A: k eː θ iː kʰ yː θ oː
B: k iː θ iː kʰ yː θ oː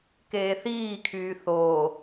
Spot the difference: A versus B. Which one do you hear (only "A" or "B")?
A